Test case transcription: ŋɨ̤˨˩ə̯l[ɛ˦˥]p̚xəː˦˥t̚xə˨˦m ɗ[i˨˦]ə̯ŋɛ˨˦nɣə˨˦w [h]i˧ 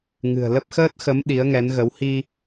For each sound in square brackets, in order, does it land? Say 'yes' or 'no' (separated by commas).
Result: no, yes, yes